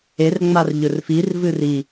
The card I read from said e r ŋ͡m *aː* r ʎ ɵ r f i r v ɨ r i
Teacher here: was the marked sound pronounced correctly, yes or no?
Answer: no